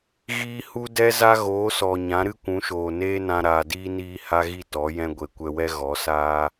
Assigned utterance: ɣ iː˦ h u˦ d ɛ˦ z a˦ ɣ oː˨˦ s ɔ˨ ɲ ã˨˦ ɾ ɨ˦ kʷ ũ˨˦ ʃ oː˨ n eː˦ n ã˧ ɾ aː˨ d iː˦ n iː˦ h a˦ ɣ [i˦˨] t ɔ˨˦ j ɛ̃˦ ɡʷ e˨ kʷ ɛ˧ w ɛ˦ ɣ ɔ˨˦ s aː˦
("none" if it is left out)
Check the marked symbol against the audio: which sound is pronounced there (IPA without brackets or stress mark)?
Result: i˦˨